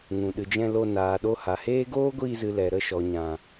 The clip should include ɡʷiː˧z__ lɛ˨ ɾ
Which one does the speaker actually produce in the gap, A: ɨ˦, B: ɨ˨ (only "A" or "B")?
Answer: B